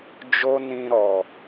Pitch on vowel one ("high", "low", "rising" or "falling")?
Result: high